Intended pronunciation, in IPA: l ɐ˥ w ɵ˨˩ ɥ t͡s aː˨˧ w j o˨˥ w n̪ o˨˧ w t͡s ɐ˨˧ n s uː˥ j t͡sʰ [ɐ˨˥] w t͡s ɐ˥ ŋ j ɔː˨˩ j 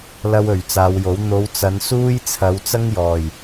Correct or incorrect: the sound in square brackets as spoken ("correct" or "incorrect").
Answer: incorrect